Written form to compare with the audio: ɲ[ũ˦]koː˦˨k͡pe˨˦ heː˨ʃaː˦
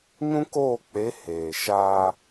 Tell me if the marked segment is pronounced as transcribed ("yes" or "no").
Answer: yes